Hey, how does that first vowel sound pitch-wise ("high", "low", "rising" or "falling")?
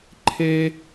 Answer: high